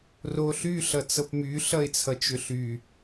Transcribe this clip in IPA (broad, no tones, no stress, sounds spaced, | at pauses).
r o ɬ y ɬ ʌ t͡s ɤ p m y ɬ ʌ ɪ̯ t͡sʰ ʌ t͡ʃ ʏ ɬ y